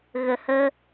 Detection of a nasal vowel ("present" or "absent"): absent